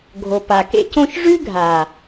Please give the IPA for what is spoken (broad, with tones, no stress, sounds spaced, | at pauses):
ɡʱ o˨ p a˨ k ḛ˦ c õ˦ ʃ ʐ ʉ˦ ɡʱ a˨